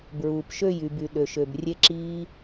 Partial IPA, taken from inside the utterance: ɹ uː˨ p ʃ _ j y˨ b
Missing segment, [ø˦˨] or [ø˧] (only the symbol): ø˦˨